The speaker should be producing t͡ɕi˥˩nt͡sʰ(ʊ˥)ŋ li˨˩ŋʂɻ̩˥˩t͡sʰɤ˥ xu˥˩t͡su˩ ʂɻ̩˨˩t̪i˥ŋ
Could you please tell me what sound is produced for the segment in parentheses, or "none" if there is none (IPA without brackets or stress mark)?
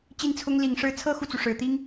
ʊ˥